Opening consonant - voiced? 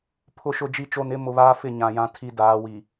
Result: no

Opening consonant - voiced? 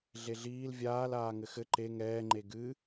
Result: yes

